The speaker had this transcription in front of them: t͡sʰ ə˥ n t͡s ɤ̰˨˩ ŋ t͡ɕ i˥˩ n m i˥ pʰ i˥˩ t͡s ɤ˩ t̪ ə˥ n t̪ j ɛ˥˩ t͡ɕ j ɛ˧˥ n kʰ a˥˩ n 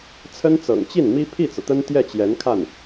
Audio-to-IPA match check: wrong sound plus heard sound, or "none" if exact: none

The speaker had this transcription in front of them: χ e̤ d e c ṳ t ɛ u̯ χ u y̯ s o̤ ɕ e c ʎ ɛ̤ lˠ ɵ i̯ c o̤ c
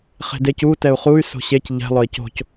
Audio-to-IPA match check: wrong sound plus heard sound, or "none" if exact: ṳ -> u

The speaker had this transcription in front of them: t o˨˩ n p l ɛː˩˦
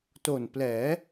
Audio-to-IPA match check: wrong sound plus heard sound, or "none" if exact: none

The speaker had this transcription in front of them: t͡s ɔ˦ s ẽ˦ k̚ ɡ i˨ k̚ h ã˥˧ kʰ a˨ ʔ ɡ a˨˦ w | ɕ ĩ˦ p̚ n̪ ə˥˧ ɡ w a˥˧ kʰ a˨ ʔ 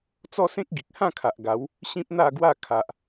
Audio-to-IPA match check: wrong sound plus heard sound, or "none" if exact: ə˥˧ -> a˥˧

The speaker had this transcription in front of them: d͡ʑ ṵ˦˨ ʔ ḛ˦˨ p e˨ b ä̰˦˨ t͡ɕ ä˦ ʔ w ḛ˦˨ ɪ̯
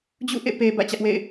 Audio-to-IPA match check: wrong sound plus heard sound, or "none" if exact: none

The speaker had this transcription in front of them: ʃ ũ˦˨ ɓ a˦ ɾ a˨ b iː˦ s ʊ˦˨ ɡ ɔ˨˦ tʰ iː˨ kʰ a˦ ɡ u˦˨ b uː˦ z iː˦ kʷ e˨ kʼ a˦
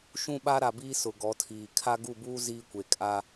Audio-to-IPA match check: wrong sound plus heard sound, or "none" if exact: ʊ˦˨ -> ʊ˨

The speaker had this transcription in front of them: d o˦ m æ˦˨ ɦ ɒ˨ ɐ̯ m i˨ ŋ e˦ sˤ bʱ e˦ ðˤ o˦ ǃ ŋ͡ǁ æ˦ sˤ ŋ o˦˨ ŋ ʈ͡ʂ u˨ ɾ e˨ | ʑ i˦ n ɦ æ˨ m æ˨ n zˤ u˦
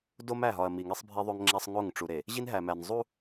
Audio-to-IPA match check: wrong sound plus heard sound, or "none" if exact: ǃ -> ŋ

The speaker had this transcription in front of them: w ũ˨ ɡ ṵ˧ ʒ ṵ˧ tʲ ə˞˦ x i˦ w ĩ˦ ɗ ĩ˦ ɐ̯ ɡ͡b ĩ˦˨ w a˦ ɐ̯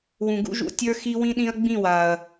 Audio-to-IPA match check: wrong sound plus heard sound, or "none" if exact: a˦ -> a˨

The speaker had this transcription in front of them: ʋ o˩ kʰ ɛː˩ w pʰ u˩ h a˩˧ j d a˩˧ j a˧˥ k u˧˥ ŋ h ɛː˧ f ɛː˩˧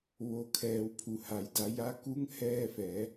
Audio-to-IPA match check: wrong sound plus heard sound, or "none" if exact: none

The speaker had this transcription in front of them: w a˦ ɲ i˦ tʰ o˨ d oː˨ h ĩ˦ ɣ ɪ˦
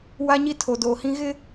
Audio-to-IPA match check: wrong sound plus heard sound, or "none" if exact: none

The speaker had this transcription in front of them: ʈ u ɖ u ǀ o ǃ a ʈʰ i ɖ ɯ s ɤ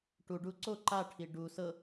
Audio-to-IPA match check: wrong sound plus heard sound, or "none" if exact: ɯ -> u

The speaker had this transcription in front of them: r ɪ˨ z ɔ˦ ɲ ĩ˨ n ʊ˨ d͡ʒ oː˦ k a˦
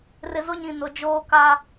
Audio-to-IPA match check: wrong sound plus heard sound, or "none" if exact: ɔ˦ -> ʊ˦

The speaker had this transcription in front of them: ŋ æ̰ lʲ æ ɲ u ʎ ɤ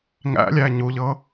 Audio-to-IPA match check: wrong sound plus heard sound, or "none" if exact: none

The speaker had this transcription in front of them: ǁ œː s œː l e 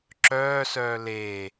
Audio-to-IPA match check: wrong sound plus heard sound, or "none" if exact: none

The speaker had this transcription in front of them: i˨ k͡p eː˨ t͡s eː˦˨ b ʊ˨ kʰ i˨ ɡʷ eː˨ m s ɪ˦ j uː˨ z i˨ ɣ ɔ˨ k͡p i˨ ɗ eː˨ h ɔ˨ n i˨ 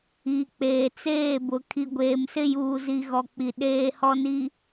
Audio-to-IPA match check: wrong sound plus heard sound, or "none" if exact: none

